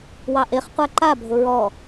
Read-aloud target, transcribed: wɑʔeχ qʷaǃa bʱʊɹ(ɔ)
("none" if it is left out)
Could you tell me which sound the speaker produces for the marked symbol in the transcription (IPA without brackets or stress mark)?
ɔ